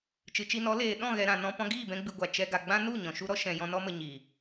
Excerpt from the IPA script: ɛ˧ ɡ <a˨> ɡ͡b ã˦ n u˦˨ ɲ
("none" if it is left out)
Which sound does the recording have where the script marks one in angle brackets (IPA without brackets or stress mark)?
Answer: a˨